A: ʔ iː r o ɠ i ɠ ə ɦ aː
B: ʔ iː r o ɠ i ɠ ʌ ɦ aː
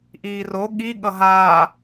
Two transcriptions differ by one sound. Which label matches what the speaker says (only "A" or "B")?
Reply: B